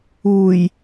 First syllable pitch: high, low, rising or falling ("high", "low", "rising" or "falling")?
low